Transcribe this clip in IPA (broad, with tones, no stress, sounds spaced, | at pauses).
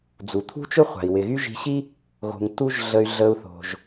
d͡z u˩ t̪ʰ ṳ˥ t͡ʃ ʊ˥ χʷ a̤˩ i̯ w ɪ˩ ɣ y˥ ʒ i̤˧ ɕ i˥ | ɣ o̤˩ ŋ t u˥ ʒ ɮ ə˧ y̯ ɮ ə˧ u̯ θ o̤˩ ʒ